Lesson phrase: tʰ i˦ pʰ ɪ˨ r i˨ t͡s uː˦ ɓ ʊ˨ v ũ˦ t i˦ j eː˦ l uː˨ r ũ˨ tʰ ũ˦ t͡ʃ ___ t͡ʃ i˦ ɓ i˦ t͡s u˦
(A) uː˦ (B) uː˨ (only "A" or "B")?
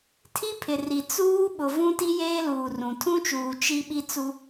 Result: B